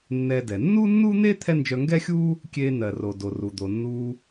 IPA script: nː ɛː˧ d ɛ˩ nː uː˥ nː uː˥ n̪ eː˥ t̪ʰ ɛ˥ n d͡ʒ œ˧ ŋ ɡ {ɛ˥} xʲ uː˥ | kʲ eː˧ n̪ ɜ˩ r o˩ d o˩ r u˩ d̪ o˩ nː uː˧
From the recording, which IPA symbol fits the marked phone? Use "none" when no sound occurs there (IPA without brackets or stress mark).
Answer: ɛ˥